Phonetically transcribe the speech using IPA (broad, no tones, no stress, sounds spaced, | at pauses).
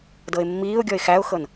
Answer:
d ɤ ɪ̯ mː iː ʊ̯ ɡʲ ɔ ɪ̯ x æ ʊ̯ x ɤ n